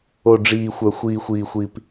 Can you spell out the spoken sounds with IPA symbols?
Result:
o˥ ɖ͡ʐ iː˥ xʷ œ˥ xʷ iː˥ xʷ iː˥ xʷ i˥ p

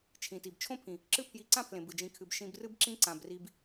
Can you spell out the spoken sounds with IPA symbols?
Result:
t͡ʃʰ ĩ˨ t i˨ b t͡ʃʰ õ˦ pʰ ĩ˨ | ǁ ɨ˦ pʰ j i˧ ǀ ã˦ pʰ l ẽ˨ b ɨ˨ d͡ʒ ĩ˧ kʰ ɨ˧ b ʃ ĩ˧ b r ɨ˦ b ǁ ĩ˦ ǀ ã˨ b r i˧ b

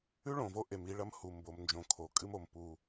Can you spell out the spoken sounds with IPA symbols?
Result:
ʉ˦ ɭ õ˨ v o˦ ʔ e˨ m i˦ ɭ ɐ˦ m h u˨ m b o˨ m n d͡ʒ õ˨ kʰ o˨ kʼ ɨ˦ m o˨ m p u˦

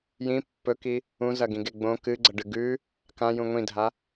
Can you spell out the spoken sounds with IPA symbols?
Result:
j ĩ pː ɵ k i | ũ z ɐ ɡ ĩ ɡ e ɡ͡b õ k ɨ ɡ͡ǀ ɐ ɖ ɨ ɡ ʉ | k ã j ũ ŋʷ ĩ dʱ a

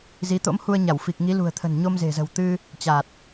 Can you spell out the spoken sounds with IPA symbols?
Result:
z i˨˦ t̪ o̰˧˥ m h u˧ ə̯ ɲ a˧˩ w f i˨˩ k̚ ŋ i˨˦ l ṳ˨˩ ə̯ t̪ʰ ə̤˨˩ n ɲ o˧ m z e̤˨˩ z ə̤˨˩ w t̪ ɨ˧ | t͡ɕ a˨˩ t̚

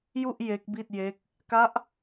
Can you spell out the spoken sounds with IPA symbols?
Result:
j u˥˩ ʔ j e˦˥ k̚ b i˥˩ t̚ j e˦˥ k̚ | k a˦˥ ʔ

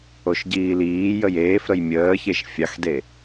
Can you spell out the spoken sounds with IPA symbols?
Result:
o ʃ ɟ iː l iː j ə j eː f ɾ ə j mʲ əː ç e ʃ fʲ ɑ x d e

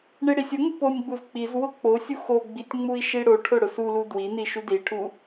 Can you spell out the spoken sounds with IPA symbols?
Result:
ɳ i ɽ i sʲ ʊ ŋ u p o nʲ ɡ͡b u z k͡p i z w ʊ k͡p o sʲ u x o ɡ͡b i tʲ ŋ͡m u i̯ ʃ i ɽ o ʈʰ ʊ ɽ ʊ s u l u d w i n i ʃ u d i ʈʰ u

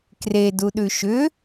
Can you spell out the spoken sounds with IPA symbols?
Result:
k r e d u ɗ ʉ ʃ ʏ

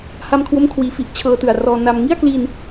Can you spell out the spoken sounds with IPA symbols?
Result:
h a˧ m kʰ w o˧ m kʰ w iː˩˦ f i˨˩ ʔ t͡ɕʰ ɤː˧ t ɯ˨˩ a̯ r ɔː˧ n a˧ m ŋ i˥˩ a̯ k l i˧ n

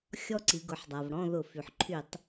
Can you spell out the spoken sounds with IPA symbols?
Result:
xʲ ɔ˦ ǀ i˩˧ ɡ ʊ˩˧ ħ dˤ a˩ v ɽ ɔ̃˦˨ ð ʊ˧˩˧ f y˩ ħ ǃʰ y˧˩˧ tˤ

